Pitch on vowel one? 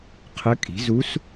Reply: rising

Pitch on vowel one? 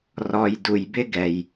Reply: low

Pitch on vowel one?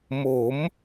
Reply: rising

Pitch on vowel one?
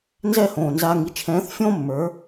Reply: falling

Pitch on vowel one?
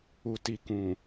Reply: low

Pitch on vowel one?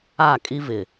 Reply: falling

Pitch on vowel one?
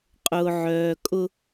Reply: low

